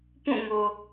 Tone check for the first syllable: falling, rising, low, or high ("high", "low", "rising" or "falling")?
falling